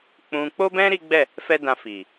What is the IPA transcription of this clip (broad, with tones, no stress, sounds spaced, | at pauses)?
k͡p ũ˧ k͡p o˦ b ɛ̃˦ ɾ i˦ ɡ͡b ɛ˦˨ | f ɛ˦ d ã˧ f i˨